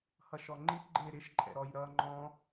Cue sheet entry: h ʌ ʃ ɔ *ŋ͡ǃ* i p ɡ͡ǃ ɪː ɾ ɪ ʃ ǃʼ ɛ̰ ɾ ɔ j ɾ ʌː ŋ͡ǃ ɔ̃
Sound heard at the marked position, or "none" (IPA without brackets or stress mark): ŋ͡ǃ